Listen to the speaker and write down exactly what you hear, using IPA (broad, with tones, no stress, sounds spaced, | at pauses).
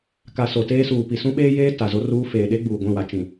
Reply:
k a˨ s o˨ t eː˦ s uː˨ p i˨ s ũ˦ ɓ eː˦ j eː˦ t a˨ z o˦ r uː˦ f eː˨ ɗ e˦ ɡ͡b uː˨ ɡʷ ĩ˦˨ w a˨ t͡ʃ ĩ˨